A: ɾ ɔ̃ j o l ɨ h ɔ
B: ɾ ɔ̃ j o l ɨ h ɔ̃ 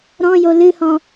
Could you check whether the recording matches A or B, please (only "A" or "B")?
B